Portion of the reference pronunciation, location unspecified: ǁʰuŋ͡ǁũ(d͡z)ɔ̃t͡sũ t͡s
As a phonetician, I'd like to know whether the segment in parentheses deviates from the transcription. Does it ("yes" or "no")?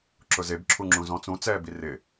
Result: yes